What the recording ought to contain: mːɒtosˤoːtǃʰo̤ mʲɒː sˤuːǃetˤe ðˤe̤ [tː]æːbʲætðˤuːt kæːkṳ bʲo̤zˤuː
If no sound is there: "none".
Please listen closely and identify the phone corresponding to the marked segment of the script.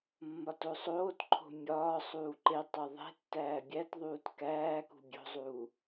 tː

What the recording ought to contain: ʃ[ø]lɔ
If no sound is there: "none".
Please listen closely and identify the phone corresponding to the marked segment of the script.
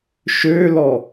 ø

